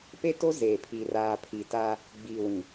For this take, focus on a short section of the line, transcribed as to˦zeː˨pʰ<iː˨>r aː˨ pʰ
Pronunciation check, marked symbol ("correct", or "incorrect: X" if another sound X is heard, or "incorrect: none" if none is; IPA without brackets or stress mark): correct